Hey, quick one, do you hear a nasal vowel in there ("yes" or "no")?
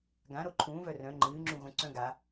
yes